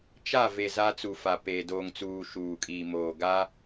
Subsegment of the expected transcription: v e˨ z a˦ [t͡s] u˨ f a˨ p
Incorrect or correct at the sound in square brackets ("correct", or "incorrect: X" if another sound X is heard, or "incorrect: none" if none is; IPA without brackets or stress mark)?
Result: correct